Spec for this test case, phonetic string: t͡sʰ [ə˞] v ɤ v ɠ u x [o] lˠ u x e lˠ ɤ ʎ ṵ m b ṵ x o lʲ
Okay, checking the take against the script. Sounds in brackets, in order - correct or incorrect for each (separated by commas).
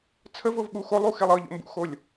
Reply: incorrect, correct